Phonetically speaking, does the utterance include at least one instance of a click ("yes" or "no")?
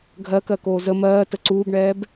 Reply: yes